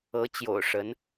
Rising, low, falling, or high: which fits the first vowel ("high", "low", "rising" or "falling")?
rising